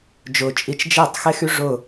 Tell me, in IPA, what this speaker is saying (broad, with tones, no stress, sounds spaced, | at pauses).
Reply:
d͡ʒ ʊː˨ t͡ʃʼ i˨ t͡ʃ d͡ʒ e˦˨ tˤ x e˦ x y˦ ʐ ʊː˦˨